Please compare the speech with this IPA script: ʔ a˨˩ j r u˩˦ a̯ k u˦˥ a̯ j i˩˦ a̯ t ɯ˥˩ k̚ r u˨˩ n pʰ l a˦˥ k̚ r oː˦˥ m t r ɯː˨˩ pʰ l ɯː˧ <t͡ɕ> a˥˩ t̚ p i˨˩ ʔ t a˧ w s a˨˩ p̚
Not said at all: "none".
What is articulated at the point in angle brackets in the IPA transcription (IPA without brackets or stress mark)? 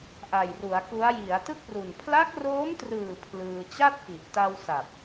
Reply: t͡ɕ